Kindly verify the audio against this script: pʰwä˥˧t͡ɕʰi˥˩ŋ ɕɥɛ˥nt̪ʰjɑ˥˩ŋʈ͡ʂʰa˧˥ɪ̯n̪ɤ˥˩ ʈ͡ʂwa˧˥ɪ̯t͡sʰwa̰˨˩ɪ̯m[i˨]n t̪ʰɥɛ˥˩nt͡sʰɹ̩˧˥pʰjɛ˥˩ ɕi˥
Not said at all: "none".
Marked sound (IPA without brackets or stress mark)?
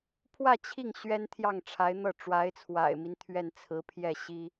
i˦